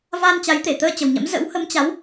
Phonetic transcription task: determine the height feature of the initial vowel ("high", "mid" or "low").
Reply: low